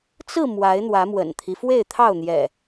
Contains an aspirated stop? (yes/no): yes